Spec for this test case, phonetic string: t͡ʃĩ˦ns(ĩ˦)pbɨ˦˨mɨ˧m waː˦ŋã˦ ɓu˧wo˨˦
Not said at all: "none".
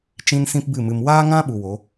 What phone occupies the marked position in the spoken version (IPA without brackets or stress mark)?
ĩ˦